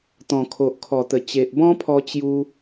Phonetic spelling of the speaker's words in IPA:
t̪ ɔ̃˨˩ kʰ o˨ ʔ kʰ ɔ˨˩ t̪ ə˨˩ t͡ɕ e˨ ʔ b ɔ̃˦ pʰ ɔ˧ t͡ɕ j u˦

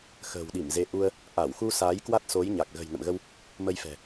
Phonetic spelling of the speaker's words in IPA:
x ə̤ː˨˩ w ɗ i˧˩ m z e˨˦ ʔ u˧ ə̯ | ʔ a˧˩ w x u˧ s aː˨˦ j k w a˦˥ t̚ s o˨˦ j ɲ a˨˩ k̚ ɣ ə̤˨˩ j n ə̰˧˨ m ɣ ə˧ w | m ə˧ j f ɛ̤˨˩

